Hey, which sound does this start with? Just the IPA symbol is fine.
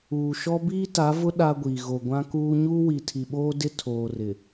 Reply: uː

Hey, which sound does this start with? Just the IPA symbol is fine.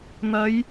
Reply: n̪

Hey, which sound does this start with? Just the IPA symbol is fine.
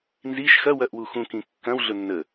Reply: n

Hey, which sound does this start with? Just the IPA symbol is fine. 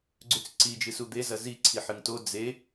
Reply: ɡ͡ǀ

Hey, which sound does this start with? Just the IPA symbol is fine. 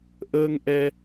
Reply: ʔ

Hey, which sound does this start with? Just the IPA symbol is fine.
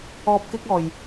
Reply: ɔː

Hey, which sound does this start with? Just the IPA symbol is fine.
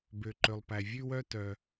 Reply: b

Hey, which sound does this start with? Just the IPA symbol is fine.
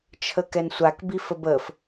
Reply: t͡ʃʰ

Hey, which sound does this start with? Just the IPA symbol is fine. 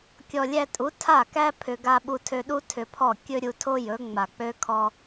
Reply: kʲ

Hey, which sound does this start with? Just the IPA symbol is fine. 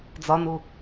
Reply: d͡z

